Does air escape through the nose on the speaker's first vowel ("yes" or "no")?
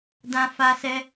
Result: yes